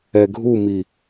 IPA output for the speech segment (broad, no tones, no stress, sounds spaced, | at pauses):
ɛ ɡʱ u m i